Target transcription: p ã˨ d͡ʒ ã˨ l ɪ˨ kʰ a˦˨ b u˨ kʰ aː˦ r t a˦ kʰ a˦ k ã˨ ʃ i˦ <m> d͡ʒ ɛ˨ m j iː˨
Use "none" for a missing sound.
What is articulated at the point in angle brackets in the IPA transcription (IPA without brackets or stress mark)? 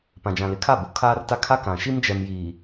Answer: m